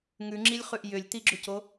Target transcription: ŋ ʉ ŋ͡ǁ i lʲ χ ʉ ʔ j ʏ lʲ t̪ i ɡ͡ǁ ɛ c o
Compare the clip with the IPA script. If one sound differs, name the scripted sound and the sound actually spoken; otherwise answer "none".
ɛ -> ʏ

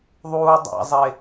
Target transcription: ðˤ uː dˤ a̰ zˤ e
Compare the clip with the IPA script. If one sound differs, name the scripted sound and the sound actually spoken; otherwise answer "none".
none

